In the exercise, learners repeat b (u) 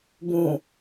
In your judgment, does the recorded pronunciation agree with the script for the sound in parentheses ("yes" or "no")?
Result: no